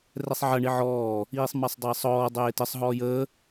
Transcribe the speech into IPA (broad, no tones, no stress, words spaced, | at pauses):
rɛsˤʕɐɳi ʕɔː | iːsˤmasˤdˤɐːsˤɔː dˤeːtəsˤ ɦɔːjəː